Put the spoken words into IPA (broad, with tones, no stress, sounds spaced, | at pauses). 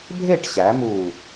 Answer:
bʱ e˥˨ ʈ ɕ æ˩˧ m u˨˩